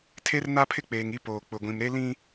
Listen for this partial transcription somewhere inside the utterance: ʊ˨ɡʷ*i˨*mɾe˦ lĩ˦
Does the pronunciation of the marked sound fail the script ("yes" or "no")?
yes